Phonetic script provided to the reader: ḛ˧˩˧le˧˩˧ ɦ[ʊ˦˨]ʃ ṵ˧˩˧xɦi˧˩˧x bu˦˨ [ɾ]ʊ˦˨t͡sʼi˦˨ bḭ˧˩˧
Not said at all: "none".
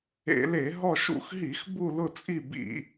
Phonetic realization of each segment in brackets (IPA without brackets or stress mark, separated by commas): ɔ˦˨, l